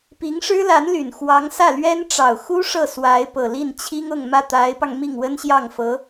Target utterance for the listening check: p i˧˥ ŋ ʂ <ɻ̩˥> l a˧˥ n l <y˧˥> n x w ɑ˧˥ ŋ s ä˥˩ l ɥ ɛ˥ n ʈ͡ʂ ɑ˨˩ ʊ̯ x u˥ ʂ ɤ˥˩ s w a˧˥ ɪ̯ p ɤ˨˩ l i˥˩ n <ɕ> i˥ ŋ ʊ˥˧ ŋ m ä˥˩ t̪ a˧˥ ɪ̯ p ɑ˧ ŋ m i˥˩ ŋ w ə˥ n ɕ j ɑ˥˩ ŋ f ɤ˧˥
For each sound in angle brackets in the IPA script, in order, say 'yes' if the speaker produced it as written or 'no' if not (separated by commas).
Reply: yes, no, no